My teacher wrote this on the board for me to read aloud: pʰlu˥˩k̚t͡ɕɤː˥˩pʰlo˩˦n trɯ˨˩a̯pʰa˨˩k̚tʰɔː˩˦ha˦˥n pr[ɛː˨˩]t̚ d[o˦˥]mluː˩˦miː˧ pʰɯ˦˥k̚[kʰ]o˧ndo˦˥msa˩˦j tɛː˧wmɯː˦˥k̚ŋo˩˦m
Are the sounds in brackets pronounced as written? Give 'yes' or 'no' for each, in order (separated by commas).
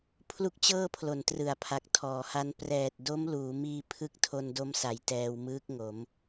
yes, yes, no